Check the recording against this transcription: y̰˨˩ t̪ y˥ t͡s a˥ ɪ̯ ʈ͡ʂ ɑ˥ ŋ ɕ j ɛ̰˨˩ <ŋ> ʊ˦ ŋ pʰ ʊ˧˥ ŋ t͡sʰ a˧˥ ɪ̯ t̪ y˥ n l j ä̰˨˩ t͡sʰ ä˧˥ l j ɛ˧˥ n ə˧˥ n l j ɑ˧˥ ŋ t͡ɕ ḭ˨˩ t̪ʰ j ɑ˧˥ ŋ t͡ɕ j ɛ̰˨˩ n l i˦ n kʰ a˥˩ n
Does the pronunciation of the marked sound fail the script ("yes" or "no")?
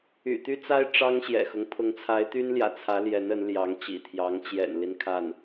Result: yes